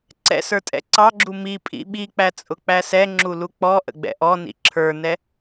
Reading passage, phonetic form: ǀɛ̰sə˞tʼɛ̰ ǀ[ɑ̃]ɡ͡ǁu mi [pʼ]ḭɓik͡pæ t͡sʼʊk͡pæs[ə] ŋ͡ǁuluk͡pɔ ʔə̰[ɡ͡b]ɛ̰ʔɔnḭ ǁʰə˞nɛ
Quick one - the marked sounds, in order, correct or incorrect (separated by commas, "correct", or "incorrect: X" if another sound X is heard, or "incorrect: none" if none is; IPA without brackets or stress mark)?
incorrect: ɑ, correct, incorrect: ɛ, correct